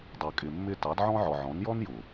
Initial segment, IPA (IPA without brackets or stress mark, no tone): dˤ